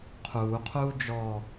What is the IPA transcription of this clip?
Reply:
qʰ uː qʰ uː d͡ʒ ɔ

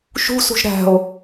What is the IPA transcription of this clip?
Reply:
ʃ ṳ s ṳ ʒ ɾ æ̤ o̯

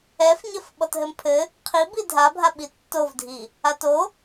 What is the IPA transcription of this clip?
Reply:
ɛ f ɲ ɘ f ɓ ɔ t ɦ ɘ m pʰ ɘ | qʰ i b i dʱ a bʱ a ɓ i tː o v dʱ i | a t o

